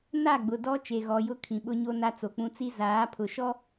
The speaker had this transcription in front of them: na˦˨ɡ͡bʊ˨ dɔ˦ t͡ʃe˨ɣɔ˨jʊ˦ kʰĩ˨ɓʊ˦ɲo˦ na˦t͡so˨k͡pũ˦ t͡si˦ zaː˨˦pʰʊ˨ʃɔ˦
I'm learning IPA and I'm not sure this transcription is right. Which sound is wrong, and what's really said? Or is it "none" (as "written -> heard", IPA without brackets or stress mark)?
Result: none